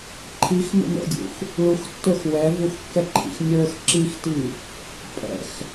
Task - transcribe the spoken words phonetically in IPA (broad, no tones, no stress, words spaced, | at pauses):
ǃʰixmə̰ mə̰dʲṵx | ɭuxtːə˞x wɛvuxkːɛǃʰḭx nʲə˞x ǁixti | pʼɛ̰x